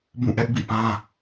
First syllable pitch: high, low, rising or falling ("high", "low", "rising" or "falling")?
falling